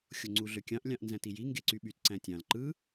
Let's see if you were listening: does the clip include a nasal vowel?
yes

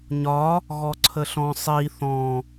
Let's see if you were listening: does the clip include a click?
yes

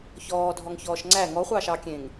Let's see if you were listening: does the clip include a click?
yes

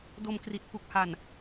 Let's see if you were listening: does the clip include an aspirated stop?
no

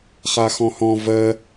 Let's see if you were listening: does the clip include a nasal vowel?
yes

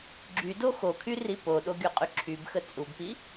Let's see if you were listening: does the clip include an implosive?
yes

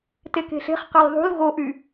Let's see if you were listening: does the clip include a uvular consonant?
yes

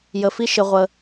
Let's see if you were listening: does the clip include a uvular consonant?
yes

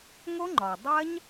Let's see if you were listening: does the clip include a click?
yes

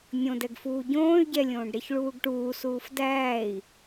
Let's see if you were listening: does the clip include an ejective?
no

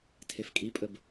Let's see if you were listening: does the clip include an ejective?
yes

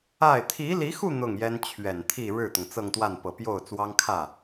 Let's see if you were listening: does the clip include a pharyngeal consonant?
no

